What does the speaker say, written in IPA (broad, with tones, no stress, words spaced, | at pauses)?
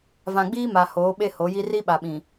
vã˨ɡ͡biː˦ma˨ hoː˨˦ɓe˦ho˨˦ji˦ ri˦ ɓa˨ɓĩ˨